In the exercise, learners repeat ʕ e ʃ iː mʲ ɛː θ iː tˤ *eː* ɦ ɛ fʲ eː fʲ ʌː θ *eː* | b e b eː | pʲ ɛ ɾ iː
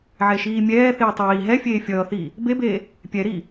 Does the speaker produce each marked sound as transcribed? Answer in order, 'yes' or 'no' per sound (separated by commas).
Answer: no, no